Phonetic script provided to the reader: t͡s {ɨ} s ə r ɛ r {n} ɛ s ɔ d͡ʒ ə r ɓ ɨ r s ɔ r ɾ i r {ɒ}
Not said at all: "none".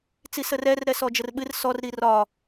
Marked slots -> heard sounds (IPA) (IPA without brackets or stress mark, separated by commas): i, ɾ, ɒ